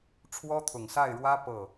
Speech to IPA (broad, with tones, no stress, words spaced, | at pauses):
ʈ͡ʂʰwɔ˥t̪ʰʊ˨˩ŋsa˥˩ɪ̯ɻwä˥ pɤ˥˩